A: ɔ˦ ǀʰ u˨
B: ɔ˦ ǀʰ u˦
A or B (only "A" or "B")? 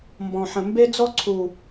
A